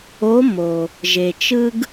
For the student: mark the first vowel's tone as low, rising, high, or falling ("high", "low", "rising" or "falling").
rising